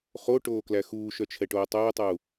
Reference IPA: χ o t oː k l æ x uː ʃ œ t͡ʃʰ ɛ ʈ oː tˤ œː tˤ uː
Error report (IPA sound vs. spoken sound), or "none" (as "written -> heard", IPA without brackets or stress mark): t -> ʈ